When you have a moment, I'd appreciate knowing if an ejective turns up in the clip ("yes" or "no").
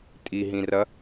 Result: yes